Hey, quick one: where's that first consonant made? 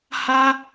throat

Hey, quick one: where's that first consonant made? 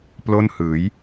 lips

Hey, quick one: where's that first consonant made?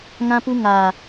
velum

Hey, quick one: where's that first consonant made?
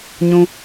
palate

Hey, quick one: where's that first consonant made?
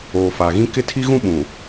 lips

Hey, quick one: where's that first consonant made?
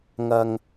velum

